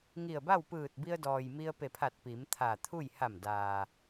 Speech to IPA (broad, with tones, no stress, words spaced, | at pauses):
ŋi˧˩ə̯ba˥˨w pɯː˧˩t̚bi˧ə̯dɔː˩j mi˧ə̯pe˧˩pʰa˧˩t̚ pi˩˧mt̪ʰa˧˩t̪ʰu˥˨j ha˧˩mdaː˩